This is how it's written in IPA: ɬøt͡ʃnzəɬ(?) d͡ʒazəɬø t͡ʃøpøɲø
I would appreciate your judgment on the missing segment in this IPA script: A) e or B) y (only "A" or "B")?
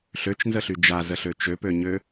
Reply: B